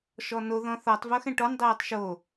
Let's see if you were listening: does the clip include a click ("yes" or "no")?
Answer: no